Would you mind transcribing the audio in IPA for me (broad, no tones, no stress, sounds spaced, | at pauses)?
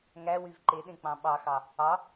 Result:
ŋ æ w y v ǃ e ɗ ẽ k͡p ɑ̃ ɓ ɑ x ɑ | ɑ